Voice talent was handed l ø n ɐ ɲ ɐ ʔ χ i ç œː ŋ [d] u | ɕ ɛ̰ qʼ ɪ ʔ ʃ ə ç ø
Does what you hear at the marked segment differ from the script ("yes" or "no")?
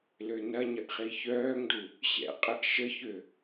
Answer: no